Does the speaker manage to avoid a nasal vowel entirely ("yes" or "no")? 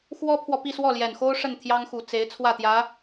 yes